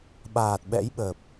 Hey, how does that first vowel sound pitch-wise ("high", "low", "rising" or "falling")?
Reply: low